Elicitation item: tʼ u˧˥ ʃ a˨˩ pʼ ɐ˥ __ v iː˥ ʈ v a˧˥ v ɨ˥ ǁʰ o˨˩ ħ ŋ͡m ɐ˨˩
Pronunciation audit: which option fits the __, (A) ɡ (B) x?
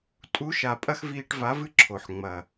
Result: B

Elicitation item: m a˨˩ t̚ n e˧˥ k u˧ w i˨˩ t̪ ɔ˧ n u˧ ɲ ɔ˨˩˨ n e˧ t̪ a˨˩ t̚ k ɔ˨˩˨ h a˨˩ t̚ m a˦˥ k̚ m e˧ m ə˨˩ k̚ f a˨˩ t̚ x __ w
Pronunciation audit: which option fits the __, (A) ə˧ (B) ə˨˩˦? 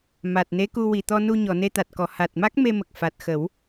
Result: B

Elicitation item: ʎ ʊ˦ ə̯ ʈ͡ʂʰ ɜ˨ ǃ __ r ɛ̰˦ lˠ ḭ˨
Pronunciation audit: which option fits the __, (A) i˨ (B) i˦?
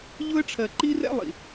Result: B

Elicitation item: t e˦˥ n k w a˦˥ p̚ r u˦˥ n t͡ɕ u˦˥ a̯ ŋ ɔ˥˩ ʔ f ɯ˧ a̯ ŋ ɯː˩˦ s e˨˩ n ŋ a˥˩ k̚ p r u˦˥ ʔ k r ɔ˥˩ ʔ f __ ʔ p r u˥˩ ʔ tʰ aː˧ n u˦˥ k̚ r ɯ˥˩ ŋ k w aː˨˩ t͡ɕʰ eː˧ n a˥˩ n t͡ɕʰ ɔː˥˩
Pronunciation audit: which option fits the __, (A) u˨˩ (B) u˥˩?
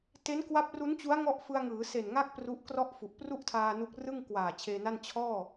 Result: A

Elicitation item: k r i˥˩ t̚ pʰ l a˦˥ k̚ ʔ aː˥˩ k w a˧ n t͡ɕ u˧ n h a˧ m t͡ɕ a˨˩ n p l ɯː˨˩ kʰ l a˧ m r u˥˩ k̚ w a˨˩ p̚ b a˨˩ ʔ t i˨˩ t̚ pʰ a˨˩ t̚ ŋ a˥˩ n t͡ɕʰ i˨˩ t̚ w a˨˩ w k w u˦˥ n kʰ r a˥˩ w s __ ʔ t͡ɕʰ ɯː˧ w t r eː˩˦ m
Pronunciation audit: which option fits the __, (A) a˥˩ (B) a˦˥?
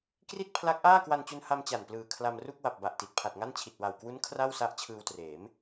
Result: B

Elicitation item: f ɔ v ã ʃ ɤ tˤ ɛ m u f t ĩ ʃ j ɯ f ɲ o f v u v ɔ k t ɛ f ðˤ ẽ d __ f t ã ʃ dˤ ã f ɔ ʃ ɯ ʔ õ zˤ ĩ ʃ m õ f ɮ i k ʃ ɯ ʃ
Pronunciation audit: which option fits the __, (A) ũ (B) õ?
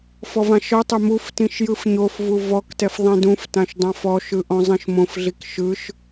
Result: A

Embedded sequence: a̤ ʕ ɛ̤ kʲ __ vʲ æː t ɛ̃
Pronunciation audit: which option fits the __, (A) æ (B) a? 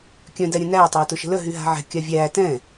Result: B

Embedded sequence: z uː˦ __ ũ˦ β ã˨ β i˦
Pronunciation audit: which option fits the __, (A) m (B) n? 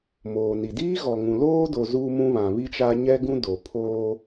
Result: A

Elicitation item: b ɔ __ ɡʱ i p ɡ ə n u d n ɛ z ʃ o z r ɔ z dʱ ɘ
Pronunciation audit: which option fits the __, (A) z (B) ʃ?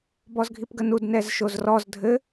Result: A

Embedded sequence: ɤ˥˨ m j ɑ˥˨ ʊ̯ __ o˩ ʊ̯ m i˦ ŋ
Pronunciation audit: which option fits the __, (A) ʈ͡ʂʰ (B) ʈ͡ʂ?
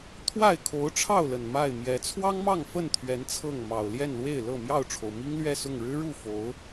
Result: A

